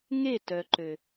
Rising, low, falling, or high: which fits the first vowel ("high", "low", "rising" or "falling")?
falling